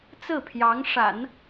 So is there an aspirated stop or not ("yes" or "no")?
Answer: yes